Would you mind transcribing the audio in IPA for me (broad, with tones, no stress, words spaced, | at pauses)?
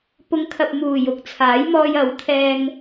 pʊ˨˧ŋkʰɐ˨p̚ muː˨˩jʊ˨k̚t͡sʰaː˨˥j mɔː˧jɐ˨˥wt̪ʰɛː˧ŋ